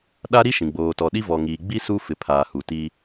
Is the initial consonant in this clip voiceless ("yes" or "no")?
no